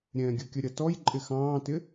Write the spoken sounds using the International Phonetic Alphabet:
ɾʲ ɛ̃ː ɡʲ ə kʲ ə ɾʲ ʌ t ɔ j ǃʼ ɪ x ɑ̃ː t ɪ

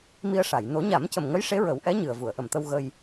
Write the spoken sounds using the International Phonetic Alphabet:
m i˧ ə̯ ʂ a˨˩˨ j n o˨˩˦ ɲ a˨˩˦ m c ə˨˩ m ŋ ə˧˥ j ʂ e˧˥ ɹ ə˨˩˦ w ʔ ɛ˧˥ ɲ ɨ˨˩ ə̯ v u˨˩˨ ə̯ ʔ ə˨˩ m t̪ ə˧ w ɣ ə˧ j

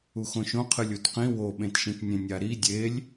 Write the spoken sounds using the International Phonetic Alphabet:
u x õ ʃ õ qʰ ɨ lʲ u t q ĩ w o ɓ ẽ t ʃ ĩ t nʲ ẽ nʲ a ɾ i dʲ e lʲ

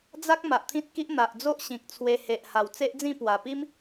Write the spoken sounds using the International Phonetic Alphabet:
d͡z a˦ k̚ m a˨ ʔ t̪ʰ ĩ˦ t̚ k i˦ ʔ n̪ a˨ ʔ d͡z o˦ ʔ ɕ ĩ˨ k̚ t͡sʰ w e˧ h e˨ ʔ h a˨˩ w t͡s e˦ ʔ d͡z ĩ˥˧ p w a˨˩ p i˦ m

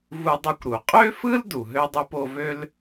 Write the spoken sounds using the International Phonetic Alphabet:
v u˧ dˤ ɯ˧ kʷ ɾ u˩ qʼ ø˥ f ɯ˥ l d u˩ ɦ ø˥ dˤ ø˥ p o˧ v ø˥ l

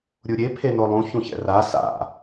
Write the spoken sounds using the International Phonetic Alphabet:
ɾʲ u ɾʲ e pʰ e n o lˠ ũ ç ũ ç ɛ̰ r a s a̰

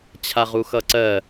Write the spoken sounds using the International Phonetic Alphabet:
t͡ɕʰ a ʁ u x ʌ ǀ ɜ

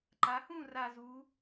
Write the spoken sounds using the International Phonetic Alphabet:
ǃ a˩˧ h ũ˥˨ r a˨˩ z u˩˧

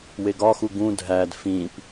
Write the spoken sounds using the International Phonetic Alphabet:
w e ɡ ɒ x u ɡ ũ dʱ æ d f ĩ p

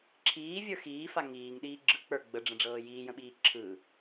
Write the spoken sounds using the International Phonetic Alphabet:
ǁʰ iː vʲ ə˞ x iː f a ŋ iː ŋ ɗ iː ɡ͡ǁ ɯ k͡p ə˞ ɡ͡b ə ɖ͡ʐ ə̃ ɖ͡ʐ ɤː j iː j ə̃ ɓ iː ǁʰ ɯ

